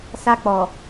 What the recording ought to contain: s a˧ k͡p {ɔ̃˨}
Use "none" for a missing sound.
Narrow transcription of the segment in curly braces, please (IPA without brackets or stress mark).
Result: ɔ˨